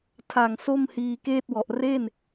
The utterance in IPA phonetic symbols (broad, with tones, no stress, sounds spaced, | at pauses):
tʰ a˨˩ ŋ s o˥˩ m h iː˧ k eː˥˩ t̚ w ɔ˨˩ ʔ r e˥˩ n